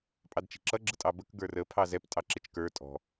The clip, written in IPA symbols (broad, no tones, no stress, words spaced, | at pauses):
pʼɑdt͡ʃi̤ǁʌ ɡ͡ǁətʼɑbək ɡə˞rə pʰɑzɛp tʼɑǁɪt͡ʃkə˞ tʼɔ̤